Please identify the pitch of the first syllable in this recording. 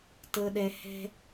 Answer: low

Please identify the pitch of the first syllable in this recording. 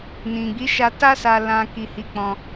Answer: low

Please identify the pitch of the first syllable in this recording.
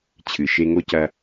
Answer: low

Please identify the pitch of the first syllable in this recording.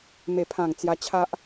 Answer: low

